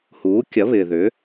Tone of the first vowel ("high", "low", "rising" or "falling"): rising